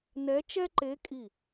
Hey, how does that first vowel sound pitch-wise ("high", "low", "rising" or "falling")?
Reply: rising